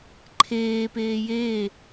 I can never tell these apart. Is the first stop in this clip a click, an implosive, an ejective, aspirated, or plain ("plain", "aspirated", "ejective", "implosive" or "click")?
click